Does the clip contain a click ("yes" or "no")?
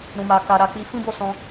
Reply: no